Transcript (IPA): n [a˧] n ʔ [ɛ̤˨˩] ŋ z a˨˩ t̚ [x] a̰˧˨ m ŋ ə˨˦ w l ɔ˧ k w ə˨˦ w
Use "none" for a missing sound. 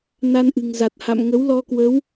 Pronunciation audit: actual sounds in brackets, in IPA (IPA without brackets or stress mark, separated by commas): a˧, ɨ̤˨˩, h